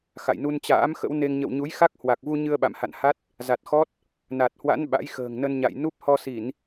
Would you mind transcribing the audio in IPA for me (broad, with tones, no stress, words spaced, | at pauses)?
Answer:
xa̰˧˨jnu˧nt͡ɕa̰ː˧˥m xə̰˧˥wne˧ŋ ɲə̰˧˨wɲu˨˦jxa˦˥k̚ hwa˨˩k̚vu˧ ɲɨ˧ə̯ɓa̰˧˨mha̰˧˨nha˦˥t̚ | za˨˩t̚xɔ˦˥t̚ | na˨˩t̚hwa̰˧˥n ɓa̰˧˥jxə̤ː˨˩ŋnə˧nɲa̰˧˨j nu˦˥p̚hɔ˧si˧˩˨n